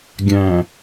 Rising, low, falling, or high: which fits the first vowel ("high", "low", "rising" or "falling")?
low